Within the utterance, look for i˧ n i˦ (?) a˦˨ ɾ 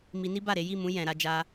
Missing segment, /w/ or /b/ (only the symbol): b